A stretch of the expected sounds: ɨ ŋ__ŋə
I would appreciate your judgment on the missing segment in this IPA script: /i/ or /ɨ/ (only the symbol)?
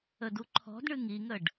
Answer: i